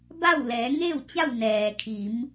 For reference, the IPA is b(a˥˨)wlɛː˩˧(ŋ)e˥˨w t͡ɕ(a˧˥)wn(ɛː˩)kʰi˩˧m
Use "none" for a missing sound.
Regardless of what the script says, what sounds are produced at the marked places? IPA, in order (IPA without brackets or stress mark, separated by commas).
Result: a˥˨, ŋ, a˥˨, ɛː˩